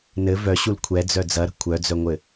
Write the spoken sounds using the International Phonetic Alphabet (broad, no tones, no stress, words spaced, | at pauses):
nɘ vœɕul kʷʰɛ d͡zœd͡zɐɾə̤ kʷʰœd͡zœŋʷɘ